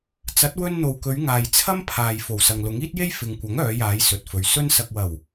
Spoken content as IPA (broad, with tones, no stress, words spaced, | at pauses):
t͡sɐ˨˥t̚wɵ˧n n̪o˨wkɵ˨˧ɥ ŋaː˨j t͡sʰɐ˥m pʰaː˨j fo˨˩wsɐ˨ŋlʊ˨˥ŋ iː˥t̚je˥j fɪ˨ŋkʷɐ˨˥ŋœː˨˧jaː˨˧j sɵ˨t̚fɵ˨ɥ sɵ˧nsɐ˨k̚wɐ˨˩w